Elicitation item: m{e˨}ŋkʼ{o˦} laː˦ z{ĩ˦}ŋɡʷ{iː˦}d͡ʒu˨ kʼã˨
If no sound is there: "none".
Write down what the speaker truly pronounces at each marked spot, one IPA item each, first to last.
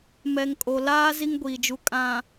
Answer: ɛ˨, o˨, i˦, iː˨

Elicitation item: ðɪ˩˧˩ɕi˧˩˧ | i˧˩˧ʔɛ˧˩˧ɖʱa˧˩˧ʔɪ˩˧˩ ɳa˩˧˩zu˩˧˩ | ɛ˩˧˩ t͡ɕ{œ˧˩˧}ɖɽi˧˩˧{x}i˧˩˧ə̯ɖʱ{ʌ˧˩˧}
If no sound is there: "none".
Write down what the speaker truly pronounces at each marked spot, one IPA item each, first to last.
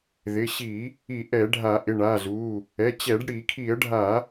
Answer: ɛ˧˩˧, kʰ, a˧˩˧

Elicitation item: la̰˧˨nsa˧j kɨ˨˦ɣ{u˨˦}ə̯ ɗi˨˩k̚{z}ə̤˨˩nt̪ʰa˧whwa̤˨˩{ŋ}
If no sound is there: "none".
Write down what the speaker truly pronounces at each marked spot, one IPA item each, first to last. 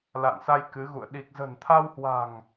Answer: ṵ˧˨, z, ŋ

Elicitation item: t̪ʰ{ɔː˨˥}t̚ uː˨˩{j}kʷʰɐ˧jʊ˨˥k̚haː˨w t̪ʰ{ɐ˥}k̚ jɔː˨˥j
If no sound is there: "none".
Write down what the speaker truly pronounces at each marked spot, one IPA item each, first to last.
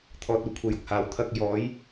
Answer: ɔː˧, none, ɐ˧

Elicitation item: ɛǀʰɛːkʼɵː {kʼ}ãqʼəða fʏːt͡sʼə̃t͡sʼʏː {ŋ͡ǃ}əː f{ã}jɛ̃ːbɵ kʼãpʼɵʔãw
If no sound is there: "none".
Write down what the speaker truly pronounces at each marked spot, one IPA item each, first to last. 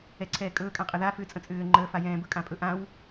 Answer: kʼ, ŋ͡ǃ, a

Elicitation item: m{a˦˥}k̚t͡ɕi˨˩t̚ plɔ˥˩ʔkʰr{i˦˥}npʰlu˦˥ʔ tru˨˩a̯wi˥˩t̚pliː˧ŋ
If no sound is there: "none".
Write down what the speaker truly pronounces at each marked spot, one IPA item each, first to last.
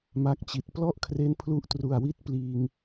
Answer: a˦˥, e˦˥

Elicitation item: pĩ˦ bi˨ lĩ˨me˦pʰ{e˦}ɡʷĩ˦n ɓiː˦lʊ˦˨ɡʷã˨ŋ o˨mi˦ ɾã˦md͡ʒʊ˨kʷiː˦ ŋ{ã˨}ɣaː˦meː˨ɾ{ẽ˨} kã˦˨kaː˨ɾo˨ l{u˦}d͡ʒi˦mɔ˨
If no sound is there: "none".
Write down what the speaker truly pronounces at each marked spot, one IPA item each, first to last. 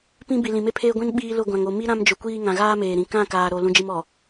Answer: eː˦, ã˨, ĩ˨, ũ˦

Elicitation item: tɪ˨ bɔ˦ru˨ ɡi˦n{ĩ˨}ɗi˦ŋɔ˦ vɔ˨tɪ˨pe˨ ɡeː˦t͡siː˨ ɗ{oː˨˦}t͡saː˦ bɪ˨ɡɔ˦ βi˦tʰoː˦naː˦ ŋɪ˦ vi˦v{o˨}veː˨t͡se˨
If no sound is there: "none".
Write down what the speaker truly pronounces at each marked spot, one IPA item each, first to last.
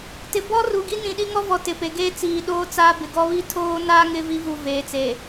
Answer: ĩ˨, oː˦, u˨

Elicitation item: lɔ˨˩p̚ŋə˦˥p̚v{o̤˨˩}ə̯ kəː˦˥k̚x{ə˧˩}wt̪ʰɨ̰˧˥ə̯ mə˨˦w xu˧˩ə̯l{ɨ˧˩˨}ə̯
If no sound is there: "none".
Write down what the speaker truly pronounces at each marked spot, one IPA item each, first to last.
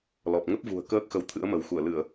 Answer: ṳ˨˩, ə˨˦, ɨ˧˩˨

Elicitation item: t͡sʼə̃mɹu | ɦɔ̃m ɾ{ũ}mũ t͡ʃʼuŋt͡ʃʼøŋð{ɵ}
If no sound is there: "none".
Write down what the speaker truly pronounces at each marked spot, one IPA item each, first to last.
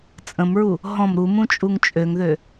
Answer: u, ø

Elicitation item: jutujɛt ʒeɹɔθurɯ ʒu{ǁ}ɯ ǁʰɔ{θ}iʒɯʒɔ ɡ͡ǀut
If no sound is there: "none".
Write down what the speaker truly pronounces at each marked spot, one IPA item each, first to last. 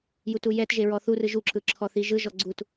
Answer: ǁ, θ

